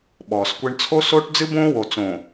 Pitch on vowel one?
low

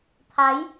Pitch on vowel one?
rising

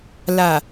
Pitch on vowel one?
low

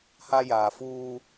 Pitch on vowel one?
high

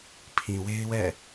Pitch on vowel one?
low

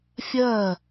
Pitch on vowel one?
falling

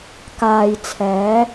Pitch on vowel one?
low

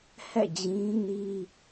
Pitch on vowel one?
falling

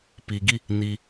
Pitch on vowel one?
low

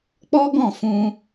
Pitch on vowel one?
high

